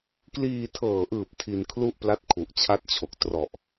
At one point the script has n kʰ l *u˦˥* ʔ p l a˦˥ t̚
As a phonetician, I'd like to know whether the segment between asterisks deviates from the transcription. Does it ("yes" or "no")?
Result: yes